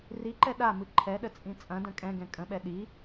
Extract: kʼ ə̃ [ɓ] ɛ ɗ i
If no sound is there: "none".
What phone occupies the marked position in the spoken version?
ɓ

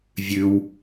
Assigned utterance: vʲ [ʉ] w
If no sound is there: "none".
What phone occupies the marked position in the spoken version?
ʉ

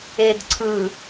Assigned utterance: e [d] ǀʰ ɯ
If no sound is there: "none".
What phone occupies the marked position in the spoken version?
d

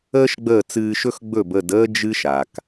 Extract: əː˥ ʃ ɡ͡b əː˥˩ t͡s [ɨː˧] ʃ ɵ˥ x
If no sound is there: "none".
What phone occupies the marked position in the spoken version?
ɨː˧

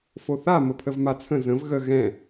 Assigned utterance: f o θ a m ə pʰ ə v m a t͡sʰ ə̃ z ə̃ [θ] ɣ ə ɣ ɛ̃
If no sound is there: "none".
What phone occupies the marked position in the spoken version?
v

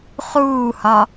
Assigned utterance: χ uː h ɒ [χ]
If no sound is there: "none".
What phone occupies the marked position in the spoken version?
none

